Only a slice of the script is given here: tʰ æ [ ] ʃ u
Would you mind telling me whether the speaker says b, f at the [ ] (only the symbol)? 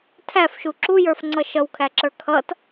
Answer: f